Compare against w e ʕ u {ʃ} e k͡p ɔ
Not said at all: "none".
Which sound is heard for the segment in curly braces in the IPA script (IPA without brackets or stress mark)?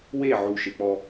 ʃ